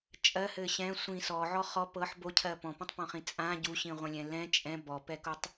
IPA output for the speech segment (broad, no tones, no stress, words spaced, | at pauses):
t͡ʃʼɜhɘ ɕɛ̃ sʷĩ sɔʕɔ χɔ pɤħ bocʰɜ pɔ̃pɔ̃tˤpɔ̃χĩ t͡sʼã ɟuɕĩʁʷɛ̃lʲɛ̃ lɛ̃ t͡ʃʼɛ̃ bɔpɛkotˤ